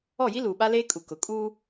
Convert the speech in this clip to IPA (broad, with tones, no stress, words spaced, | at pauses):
ɔ˦˨ji˦ luː˨ɓa˦leː˦kʼu˨ kʊ˨kʼuː˦